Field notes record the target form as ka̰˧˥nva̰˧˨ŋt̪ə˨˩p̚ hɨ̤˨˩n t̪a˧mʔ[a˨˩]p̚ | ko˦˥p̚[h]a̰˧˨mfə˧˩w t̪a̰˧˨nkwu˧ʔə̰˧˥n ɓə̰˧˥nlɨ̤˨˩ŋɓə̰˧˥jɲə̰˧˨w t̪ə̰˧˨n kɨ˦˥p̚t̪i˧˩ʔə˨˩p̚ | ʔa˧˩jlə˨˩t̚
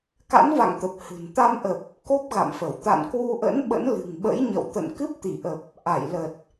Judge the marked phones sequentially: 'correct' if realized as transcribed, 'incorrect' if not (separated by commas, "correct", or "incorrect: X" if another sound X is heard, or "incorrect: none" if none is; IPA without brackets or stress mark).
incorrect: ə˨˩, incorrect: ɣ